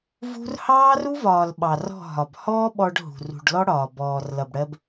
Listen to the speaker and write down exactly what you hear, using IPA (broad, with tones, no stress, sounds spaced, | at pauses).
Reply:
v ṳ˦ r h ɑː˦ r u˦ v ɒː˨ l ɓ ɑ˨ r ɔ̤˦˨ ɦ ɒ˨ b h ɔː˦ ɓ ɔ˧ ɖ ɦ ṳ˨ r ṳ˨ ɖ l ɔ˦ ɽ ɒː˨ b ɔː˨ r l ʌ˨ b ɽ ɜ˧ b